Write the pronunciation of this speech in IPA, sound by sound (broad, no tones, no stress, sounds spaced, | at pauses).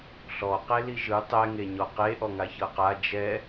ɬ ɔ q e l i ʒ ɯ tˤ ɛ ŋ e ɲ ɔ q e ʔ ɔ ŋ a ç ɤ q a d͡ʒ ɛ